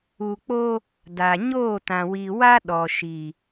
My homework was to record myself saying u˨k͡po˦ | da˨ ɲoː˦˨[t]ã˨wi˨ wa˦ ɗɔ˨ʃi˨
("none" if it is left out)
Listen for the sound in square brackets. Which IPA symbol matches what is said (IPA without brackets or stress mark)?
t